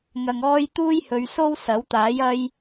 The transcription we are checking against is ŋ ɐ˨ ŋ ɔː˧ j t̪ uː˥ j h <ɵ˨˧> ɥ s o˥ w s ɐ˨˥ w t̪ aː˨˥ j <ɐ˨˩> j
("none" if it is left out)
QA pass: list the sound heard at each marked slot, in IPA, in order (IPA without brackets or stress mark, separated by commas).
ɵ˨˧, ɐ˧